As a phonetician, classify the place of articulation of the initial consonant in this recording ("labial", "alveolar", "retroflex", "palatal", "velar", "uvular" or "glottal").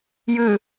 palatal